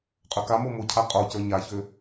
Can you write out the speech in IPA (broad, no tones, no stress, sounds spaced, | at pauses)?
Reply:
qʼ ø k a m o m ʊ cʰ a qʼ o c ə˞ ɲ a ç ø